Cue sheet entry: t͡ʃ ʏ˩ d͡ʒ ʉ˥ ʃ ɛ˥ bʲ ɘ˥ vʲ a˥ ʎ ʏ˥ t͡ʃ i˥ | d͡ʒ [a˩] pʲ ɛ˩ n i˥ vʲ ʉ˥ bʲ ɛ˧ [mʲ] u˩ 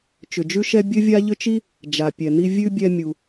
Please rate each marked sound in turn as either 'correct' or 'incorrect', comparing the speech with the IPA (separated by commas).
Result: correct, correct